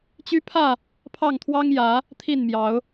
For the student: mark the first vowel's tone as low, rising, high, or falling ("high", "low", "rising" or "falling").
high